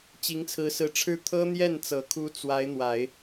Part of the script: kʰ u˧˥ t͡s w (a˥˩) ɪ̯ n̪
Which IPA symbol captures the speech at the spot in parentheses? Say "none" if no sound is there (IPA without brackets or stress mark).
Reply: a˧˥